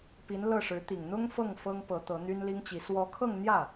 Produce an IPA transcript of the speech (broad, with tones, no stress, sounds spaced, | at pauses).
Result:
p i˧˥ n l ɤ˥˩ ʂ ɻ̩˧˥ t̪ i˨˩ ŋ n̪ ʊ˥ ŋ f ɤ˥˩ ŋ f ɤ˥ ŋ p ɤ˧˥ t̪ ɤ˧˥ n̪ y˥ n l i˥ ŋ t͡ɕ i˧˥ s w ɔ˧˥ kʰ ɤ˥˧ ŋ n̪ j ä˥˩